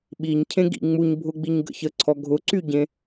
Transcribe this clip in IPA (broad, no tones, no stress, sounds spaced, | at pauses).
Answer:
ɓ i ɲ cʰ ẽ ɡ ḭ ŋ͡m u ɲ bʱ ʊ ɡ͡b i ɲ ɡ ə̰ ç ə ǀʰ ɔ ɡʱ ʊ ǀ y ɟ ẽ